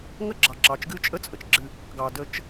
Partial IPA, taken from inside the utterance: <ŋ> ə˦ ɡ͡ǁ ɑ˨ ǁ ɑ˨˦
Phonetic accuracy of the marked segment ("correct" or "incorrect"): correct